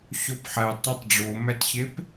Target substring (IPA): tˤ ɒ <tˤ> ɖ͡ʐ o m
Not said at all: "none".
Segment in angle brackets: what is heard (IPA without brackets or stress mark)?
tˤ